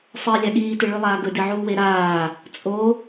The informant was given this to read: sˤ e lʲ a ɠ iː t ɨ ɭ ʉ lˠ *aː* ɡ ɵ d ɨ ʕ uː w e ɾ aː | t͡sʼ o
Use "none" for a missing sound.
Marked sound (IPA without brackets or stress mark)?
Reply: aː